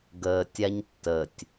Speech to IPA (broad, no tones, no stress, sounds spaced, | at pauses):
ɡ əː tʲ a ɲ tː ə tʲ